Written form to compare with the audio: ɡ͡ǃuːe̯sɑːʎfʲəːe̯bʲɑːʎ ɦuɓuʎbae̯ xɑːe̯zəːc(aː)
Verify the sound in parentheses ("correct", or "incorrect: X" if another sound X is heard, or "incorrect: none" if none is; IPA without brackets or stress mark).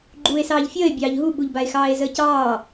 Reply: incorrect: ɑː